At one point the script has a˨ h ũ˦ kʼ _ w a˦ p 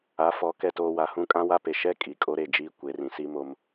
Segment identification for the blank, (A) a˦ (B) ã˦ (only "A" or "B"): B